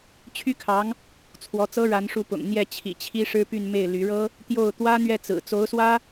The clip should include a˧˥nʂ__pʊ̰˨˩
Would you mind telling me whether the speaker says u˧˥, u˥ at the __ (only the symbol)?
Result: u˧˥